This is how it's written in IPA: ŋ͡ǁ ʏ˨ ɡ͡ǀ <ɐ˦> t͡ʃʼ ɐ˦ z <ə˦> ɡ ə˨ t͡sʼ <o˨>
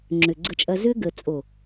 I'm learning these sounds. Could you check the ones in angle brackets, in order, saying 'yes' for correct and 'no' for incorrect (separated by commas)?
no, no, yes